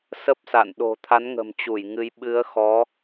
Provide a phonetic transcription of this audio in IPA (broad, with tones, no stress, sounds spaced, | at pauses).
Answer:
s ə˦˥ p̚ s a̰˧˨ n ɗ o̤˨˩ t̪ʰ a˨˦ n ŋ ə̤˨˩ m t͡ɕ u˧˩ j ŋ ɨ˨˦ j ɓ ɨ˨˦ ə̯ x ɔ˨˦